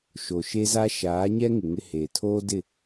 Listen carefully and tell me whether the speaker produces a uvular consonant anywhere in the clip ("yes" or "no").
no